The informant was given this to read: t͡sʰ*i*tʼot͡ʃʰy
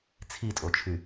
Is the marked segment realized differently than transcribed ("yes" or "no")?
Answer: no